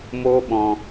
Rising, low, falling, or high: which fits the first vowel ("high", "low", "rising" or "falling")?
high